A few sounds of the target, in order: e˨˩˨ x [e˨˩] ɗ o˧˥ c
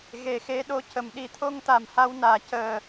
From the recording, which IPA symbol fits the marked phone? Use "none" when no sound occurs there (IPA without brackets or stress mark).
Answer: e˧˥